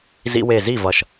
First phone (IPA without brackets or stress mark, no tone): z